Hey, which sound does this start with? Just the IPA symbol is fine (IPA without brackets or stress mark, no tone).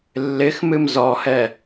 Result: lː